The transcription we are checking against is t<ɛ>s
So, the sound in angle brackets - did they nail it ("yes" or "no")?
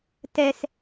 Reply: yes